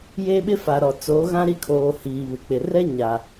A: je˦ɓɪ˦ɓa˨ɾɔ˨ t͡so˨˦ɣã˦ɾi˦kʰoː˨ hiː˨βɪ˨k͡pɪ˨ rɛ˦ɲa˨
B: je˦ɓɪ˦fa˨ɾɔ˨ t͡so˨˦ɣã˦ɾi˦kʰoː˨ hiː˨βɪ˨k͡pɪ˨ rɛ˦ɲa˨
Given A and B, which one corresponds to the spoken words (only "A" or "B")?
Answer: B